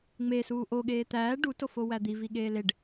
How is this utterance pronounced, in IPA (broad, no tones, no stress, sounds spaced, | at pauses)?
ŋ͡m e s uː ʔ o ɠ eː t̪ æː ɖ u t o f o w æ d̪ i v i ɠ eː l e ɖ